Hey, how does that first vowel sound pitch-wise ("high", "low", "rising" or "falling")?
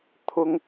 high